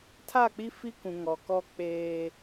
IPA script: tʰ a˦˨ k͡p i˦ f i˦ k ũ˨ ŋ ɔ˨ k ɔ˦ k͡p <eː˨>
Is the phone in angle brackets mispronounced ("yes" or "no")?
yes